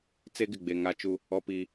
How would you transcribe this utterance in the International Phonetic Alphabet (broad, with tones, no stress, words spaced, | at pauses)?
t͡se˦ɡɪ˨ɡ͡be˨ ŋa˦t͡ʃu˦ | ɔ˦piː˦